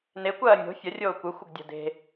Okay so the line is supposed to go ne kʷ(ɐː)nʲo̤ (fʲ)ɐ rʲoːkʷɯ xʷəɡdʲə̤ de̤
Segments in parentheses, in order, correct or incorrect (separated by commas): correct, correct